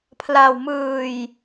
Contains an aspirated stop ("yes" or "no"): yes